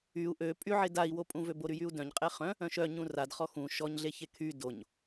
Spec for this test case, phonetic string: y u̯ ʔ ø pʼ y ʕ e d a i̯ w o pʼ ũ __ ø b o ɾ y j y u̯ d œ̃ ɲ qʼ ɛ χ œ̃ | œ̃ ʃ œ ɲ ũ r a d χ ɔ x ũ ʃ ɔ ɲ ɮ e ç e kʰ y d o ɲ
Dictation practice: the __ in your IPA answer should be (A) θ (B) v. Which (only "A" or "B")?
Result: B